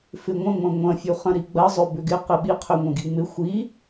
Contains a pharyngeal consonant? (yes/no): no